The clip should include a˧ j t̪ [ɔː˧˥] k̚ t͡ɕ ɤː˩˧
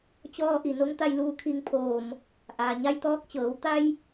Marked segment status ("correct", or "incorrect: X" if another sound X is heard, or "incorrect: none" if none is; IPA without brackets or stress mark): correct